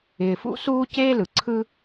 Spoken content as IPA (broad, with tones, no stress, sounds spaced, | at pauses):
ɪː˨ f ṵ˥ s uː˥ c eː˥ l ɯ˩ ǀʰ ɯ˦